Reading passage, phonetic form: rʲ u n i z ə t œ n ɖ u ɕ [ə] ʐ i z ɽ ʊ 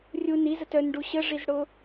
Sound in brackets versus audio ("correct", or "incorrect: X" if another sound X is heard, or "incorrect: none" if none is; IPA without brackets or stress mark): correct